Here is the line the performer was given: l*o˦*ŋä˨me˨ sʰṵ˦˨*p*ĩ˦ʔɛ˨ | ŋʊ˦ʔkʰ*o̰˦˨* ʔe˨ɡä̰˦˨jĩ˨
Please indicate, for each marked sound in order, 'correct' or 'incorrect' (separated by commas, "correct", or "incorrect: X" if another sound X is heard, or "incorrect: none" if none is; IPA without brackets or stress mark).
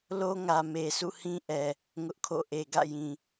correct, incorrect: h, correct